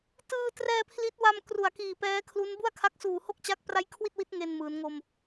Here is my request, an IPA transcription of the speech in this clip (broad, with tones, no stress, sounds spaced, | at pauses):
t ɯː˧ t r ɛː˧ pʰ l i˦˥ t̚ w a˧ m k r u˨˩ a̯ k iː˨˩ p ɛː˦˥ kʰ l u˦˥ n b u˥˩ a̯ kʰ a˦˥ k̚ s uː˨˩ h o˥˩ k̚ t͡ɕ a˦˥ k̚ p r a˦˥ j kʰ w i˥˩ t̚ w i˦˥ t̚ ŋ e˧ n m ɯː˩˦ n ŋ o˧ m